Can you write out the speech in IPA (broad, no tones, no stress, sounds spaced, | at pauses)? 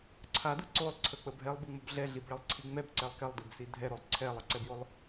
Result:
ǀʰ a d ɯ ǀ o lˠ ǀʰ ə k͡p ə bʱ ɛ lˠ b ɯ ŋ͡m o b ɮ ɛ ɮ i b ɭ ɛ lˠ ǀʰ i ŋ͡m ɛ b ǀ ɛ lˠ k ɛ lˠ d i b s i dʱ ɛ ɾ o lˠ ǀʰ ɛ lˠ ə ǀ ɛ b j o lˠ